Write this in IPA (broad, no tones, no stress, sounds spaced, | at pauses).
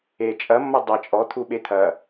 e t͡ʃʼ ɐ mː ʌ dˤ ʌ t͡ʃʼ ɔ t̪ʰ u ɓ e t̪ʰ ɐ